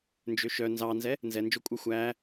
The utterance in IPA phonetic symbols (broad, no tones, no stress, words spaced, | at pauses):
nd͡ʒøʃœ nzɑnzɛ | nzɛnd͡ʒokʷʼœ xʷæ